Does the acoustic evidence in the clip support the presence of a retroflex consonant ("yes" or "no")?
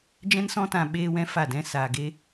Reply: no